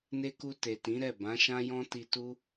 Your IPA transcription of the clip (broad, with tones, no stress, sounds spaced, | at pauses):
n e˧ k u˧ t e˨ t ĩ˨˦ ɾ ɛ˦˨ b ã˨˦ ʃ ã˦ j ɔ̃˦ t i˧ t u˦